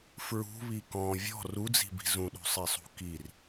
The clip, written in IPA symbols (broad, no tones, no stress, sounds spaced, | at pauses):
f ɹ ṳ β i k ɔ̃ vʲ ɔ̤ r u d͡z i̤ b i̤ z ũ ɗ ṳ sˤ i sˤ ṳ k i r